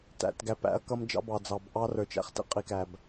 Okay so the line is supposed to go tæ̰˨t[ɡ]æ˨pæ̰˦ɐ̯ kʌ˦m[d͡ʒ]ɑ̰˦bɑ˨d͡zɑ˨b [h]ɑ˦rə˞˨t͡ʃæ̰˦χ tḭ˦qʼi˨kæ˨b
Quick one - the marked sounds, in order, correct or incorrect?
correct, correct, incorrect

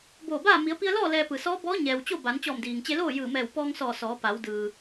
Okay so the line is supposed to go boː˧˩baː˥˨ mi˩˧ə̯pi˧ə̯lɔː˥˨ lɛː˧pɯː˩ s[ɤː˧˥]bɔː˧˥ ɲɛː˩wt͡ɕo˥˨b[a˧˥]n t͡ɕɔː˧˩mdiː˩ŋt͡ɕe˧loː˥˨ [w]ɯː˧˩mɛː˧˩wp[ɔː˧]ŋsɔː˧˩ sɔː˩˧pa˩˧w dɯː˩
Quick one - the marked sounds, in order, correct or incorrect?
incorrect, incorrect, incorrect, correct

